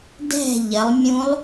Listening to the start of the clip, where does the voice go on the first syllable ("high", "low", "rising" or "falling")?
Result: falling